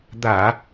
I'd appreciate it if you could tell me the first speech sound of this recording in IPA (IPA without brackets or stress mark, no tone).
d̪